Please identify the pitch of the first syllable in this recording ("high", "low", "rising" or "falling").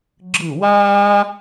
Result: falling